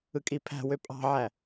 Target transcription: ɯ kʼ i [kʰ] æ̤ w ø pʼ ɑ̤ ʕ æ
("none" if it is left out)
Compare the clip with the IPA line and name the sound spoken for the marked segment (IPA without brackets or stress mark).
pʰ